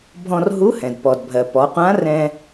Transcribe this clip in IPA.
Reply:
bʱ ɔ̃˧ r ɦ u˧˥ h ɛ̃˩ d p ɔ˩ d bʱ ɜ˩ p ɔ˩˧ qʷ ã˧˥ r ɛ̃˧

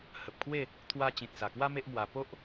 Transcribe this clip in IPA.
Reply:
h ə˨ p̚ kʰ w e˥˧ | t̪ʰ w a˧ t͡ɕ ĩ˨ t̚ s a˨˩ k w a˦ m e˦ ʔ m w a˧ p o˦ ʔ

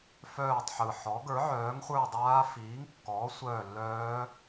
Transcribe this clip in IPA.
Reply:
f œː˦˨ tˤ ħ ɯ˨˩ ħ ɔ˨˥ ɡ ə˞˨˥ ʕ œː˨˥ ŋ χʷ ə˞˦˨ dˤ aː˦˥ f iː˨˥ ŋ kː ɔː˨˥ sʷ œː˦˨ lː œː˦˥

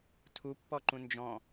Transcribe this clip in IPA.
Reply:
tʰ u pː ɔ ǃ ũ n d͡ʒ ɔ̃

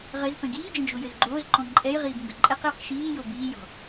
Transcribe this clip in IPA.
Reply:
ʁ ɘ z p ɛ̃ ɡ iː d͡ʒ ə̃ d͡ʒ o j ɘ z ɡ͡ǃ oː z ǃ ɔ̃ ǃʼ ɛ j ʁ iː b ŋ ɡ ə ǃʼ ɛ q j ɵ q ʃ iː j o b iː j ɔ̤

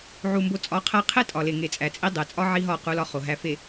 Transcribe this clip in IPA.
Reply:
ʕ u˨ m b o˨ t͡sʼ ɒ˨˦ qʰ æ˦ qʰ e˦ tʼ ɒ˨ l e˨ ŋ e˨ t͡sʼ æ˨ t͡sʼ i˦ dˤ e˨ t͡sʼ ɒ˦ ʕ i˦ ɦ ɒ˦˨ q u˦ l ɒ˦ χ o˨ ɦ æ˨ f e˨

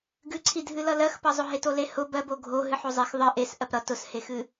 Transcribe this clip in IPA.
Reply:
ɡ ɨ ǀʰ i dʱ ɨ l ʌ l ɜ x p ʌ zˤ ʊ ɦ e t o l e h ʊ b ɜ b o ɡʱ o ɦ ɨ ħ o zˤ e x ðˤ ɨ ʔ e s ʔ ɜ p ɾ ʌ t ʊ s h e x ɨ

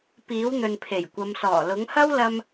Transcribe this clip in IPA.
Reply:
p iː˨˥ w n̪ ɵ˨ n pʰ e˨˩ j kʷ ɐ˨˧ m s ɔː˨˩ l ʊ˨˥ ŋ h ɐ˥ w l ɐ˥ m

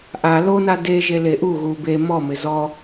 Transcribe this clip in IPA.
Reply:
ʔ a l o n a d e ʒ e l e ʔ u ɣ u b e m ɔ m ɪ z ɔ

